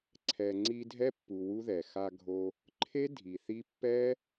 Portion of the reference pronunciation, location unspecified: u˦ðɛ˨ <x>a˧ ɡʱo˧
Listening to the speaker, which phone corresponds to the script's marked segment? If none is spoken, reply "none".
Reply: x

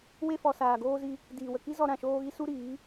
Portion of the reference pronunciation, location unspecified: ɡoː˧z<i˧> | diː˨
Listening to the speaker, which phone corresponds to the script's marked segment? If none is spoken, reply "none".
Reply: i˧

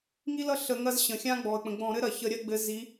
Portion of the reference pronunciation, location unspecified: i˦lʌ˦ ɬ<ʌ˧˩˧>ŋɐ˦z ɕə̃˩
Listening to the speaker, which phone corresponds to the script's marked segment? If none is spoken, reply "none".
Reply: ə˧˩˧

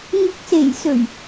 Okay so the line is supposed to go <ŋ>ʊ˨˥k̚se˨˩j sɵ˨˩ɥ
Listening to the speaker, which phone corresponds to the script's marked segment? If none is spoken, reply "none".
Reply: ŋ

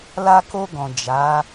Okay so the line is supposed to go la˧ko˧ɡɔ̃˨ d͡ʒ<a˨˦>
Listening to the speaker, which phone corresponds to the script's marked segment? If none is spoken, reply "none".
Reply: a˨˦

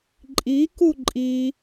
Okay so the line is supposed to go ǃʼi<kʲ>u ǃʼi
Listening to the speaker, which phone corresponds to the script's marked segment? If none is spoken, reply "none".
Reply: k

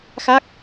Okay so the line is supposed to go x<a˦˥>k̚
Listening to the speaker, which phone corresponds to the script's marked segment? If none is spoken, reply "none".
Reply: a˦˥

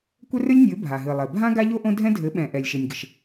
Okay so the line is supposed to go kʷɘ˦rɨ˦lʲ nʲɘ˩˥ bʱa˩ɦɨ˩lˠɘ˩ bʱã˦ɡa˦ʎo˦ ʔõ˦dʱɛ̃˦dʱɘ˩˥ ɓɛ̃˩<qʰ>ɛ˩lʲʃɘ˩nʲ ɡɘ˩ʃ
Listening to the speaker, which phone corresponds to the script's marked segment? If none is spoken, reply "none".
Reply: ʔ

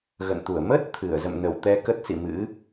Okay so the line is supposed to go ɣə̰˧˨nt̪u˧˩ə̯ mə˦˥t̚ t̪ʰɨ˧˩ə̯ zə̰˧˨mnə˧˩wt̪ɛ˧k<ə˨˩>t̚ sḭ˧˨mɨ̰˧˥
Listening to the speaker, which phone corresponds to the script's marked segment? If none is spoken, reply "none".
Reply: ə˦˥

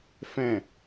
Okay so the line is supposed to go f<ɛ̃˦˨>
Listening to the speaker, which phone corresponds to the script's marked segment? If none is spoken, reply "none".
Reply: ɛ̃˦˨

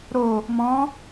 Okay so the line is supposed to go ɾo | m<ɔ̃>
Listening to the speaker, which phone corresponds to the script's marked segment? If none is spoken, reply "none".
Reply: ɔ̃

